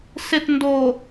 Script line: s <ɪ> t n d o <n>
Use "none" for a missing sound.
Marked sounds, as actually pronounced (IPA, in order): ɪ, none

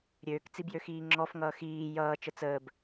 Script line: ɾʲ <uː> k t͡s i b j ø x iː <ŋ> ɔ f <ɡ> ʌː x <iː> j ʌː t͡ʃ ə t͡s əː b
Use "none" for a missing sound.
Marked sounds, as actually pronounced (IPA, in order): øː, ŋ͡ǁ, ŋ, iː

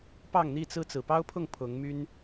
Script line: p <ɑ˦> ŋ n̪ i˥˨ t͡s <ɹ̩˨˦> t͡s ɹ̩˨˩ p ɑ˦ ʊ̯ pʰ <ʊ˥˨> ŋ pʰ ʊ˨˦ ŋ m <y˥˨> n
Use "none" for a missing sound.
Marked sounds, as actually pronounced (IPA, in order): ɑ˥˨, ɹ̩˦, ʊ˥˨, y˦

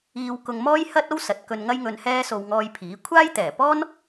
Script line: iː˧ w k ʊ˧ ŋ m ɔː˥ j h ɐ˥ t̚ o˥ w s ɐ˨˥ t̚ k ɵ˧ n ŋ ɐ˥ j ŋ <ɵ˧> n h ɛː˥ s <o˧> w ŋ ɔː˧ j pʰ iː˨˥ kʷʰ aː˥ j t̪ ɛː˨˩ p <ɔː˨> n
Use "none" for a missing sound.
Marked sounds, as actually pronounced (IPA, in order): ɵ˧, o˧, ɔː˥

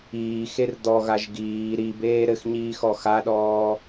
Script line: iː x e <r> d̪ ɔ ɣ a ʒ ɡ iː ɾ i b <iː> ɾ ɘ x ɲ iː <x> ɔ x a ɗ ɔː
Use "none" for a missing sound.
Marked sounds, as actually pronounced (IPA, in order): r, eː, x

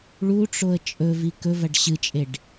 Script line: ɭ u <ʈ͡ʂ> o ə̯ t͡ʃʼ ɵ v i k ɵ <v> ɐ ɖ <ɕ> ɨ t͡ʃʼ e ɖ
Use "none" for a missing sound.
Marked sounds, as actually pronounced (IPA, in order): ʈ͡ʂ, v, ɕ

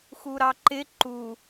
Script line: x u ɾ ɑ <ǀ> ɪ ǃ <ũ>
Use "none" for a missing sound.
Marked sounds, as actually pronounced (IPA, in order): ǃ, u

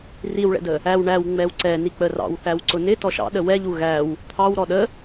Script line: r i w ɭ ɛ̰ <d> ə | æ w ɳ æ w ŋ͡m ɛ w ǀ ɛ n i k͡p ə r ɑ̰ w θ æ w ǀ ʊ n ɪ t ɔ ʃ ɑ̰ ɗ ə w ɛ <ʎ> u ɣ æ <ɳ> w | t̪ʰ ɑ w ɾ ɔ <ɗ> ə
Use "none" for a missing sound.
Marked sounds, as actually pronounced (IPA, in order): d, ʎ, none, ɗ

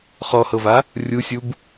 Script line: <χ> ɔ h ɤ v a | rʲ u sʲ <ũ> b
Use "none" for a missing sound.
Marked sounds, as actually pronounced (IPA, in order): χ, u

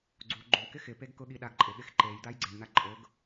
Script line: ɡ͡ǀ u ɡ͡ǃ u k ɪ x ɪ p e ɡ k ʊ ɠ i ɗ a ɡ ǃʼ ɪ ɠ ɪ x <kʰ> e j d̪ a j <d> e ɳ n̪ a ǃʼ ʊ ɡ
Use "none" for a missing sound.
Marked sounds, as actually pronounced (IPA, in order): ǃ, ɡ͡ǀ

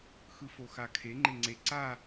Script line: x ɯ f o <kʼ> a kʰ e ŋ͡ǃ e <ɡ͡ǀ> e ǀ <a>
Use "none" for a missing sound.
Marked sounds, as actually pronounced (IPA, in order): x, ŋ͡ǀ, a

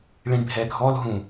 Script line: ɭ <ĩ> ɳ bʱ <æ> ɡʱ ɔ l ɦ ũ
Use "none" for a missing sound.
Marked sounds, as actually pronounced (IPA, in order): ĩ, ɛ

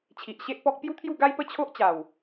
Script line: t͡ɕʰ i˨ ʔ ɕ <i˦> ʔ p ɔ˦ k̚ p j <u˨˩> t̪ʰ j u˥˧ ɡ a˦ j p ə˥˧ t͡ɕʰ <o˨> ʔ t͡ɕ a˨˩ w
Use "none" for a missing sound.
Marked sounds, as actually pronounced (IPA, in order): e˦, u˦, o˦

